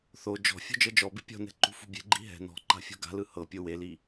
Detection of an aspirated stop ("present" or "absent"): absent